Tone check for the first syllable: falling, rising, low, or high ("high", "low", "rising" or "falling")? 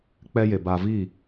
high